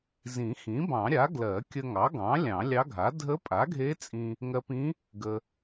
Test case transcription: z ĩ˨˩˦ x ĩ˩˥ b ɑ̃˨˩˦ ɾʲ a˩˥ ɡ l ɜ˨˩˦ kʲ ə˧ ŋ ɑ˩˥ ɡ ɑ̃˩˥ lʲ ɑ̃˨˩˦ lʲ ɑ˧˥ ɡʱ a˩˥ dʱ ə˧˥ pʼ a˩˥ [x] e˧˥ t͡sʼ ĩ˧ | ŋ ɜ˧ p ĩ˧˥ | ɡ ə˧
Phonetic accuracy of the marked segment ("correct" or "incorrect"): incorrect